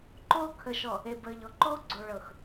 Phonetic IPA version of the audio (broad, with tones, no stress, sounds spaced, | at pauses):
ǃ oː˦ kʰ ə˨ ʃ ɔ˨ | e˨ b əː˨ ʎ ɔ˨ ǃ oː˦ ɡ͡ǀ o˨ ɭ ɤ˨ x